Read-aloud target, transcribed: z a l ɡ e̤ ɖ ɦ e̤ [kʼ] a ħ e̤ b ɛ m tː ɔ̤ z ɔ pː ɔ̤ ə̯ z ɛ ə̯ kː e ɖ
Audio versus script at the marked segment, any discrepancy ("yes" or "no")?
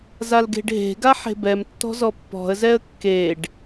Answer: yes